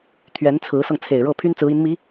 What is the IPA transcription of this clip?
t̪ʰ ɥ ɛ˧˥ n t͡sʰ ɹ̩˧˥ s ɤ˧ ŋ t͡sʰ e˨˩ ɪ̯ ɻ ɤ˥˩ pʰ y˥ n t͡s ɹ̩˧˥ i˧˥ n m i˧˥

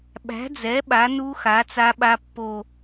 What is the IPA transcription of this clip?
ɓ æ̤˩˥ d͡z ɛ˩˥ ɓ a˩˥ n u˦˥ x a˩˥ t͡s a˦˥ ɓ a˦˥ pː o˦˨

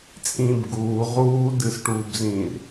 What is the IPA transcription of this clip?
t͡sʼ ĩː b ɡ uː ʁ uː d ɨ s ʈ uː b z ĩː r

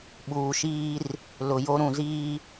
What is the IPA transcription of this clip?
ɓ uː˨ ʃ iː˦ r | l ʊ˨ j o˦ ɾ ũ˨ z iː˦

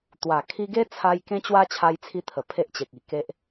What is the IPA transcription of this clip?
t̪ w a˨˩ kʰ i˧ ɡ e˦ t͡sʰ a˧ j k ẽ˦ t͡ɕ w a˦ t͡ɕʰ a˧ j t͡sʰ i˧ t̪ʰ ə˨˩ pʰ e˦ ʔ t͡ɕ e˨ k̚ i˨˩ k e˦ ʔ

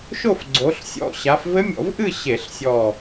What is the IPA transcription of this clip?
ʃ o˥˧ f ɡ͡ǀ o˨˦ ɬ sʲ ɔ̰˧˩ ɕ a˨˦ f v ɘ˦˥ mʲ ɔ̰˧˩˧ v ʔ ɨ˥˧ ɕ e˧˩˧ ɬ sʲ ɔ˧˩

